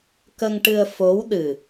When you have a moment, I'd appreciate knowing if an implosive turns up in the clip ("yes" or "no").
yes